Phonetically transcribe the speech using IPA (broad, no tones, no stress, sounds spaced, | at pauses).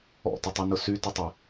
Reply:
ɔ̰ t ə tˤ y n ʊ s y t ə tˤ ɛ